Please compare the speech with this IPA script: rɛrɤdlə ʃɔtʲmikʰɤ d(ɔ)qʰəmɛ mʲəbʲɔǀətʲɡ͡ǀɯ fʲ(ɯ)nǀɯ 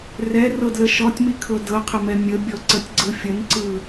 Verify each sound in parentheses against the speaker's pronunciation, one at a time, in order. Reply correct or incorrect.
incorrect: ɤ, incorrect: ə

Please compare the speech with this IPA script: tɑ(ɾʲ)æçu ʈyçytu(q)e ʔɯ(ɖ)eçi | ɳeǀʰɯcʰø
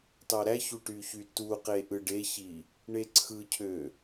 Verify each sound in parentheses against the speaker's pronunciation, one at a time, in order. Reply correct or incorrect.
incorrect: ɾ, correct, correct

